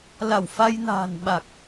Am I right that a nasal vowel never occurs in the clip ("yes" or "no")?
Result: yes